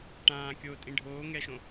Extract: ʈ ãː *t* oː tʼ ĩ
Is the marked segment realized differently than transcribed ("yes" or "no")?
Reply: yes